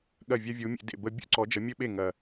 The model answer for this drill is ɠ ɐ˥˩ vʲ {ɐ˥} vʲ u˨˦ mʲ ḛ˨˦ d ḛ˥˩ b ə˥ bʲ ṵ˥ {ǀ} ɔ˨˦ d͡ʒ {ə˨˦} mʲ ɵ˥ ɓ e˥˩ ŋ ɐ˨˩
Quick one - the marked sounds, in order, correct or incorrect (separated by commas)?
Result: correct, correct, correct